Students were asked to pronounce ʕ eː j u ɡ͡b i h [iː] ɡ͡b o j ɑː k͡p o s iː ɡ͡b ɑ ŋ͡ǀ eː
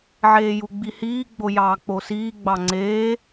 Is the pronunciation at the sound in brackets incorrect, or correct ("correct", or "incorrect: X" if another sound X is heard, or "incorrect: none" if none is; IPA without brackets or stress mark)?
correct